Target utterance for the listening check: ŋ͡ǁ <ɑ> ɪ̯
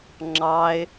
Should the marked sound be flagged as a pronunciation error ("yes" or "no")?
no